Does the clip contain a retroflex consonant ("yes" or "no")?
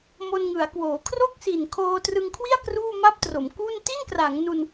no